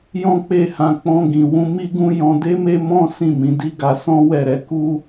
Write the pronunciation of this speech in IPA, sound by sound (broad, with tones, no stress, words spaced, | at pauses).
jɔ̃˦k͡pe˦˨hã˧ k͡pɔ̃˧ɡĩ˨wũ˧ mi˦ɡũ˦ jɔ̃˧de˦me˦ mɔ̃˦ sĩ˦˨mĩ˧di˦ɡa˧ sɔ̃˦wɛ˦˨ɾɛ˨˦ ku˦